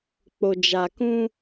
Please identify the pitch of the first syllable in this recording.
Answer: low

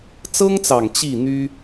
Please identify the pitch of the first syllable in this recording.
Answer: high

